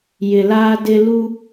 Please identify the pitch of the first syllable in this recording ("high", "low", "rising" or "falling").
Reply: low